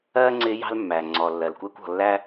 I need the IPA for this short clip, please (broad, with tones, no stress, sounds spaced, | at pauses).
ɜː˦ ŋ͡ǀ ɪː˧ j ɑ̤˦ l mː æ˨ ŋ͡ǀ ɔ˨ lː ɜ˨ l kʷ ɛː˦ kʷ ɔ̤˨ lː æ˦